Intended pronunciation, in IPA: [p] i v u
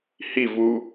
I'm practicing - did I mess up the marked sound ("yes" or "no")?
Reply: yes